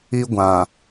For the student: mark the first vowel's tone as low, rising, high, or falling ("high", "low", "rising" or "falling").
high